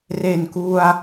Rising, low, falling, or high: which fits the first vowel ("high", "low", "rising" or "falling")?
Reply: low